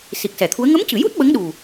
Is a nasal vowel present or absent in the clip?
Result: absent